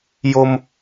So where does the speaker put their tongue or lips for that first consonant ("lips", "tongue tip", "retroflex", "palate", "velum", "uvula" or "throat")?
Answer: palate